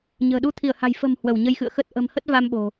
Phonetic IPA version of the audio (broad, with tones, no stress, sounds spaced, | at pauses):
ɲ ə̤ː˨˩ ɗ u˧ t̪ʰ i˧˩ ə̯ h a̤˨˩ j f ə̤˨˩ m h w ə˧˩ w ɲ ə˧ j x ɨ̰˧˨ ə̯ x ə˦˥ t̚ ʔ ə̤˨˩ m h ə˦˥ t̚ v a˧ m ɓ o̤˨˩